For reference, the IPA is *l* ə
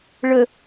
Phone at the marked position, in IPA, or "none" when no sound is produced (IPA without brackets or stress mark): ɭ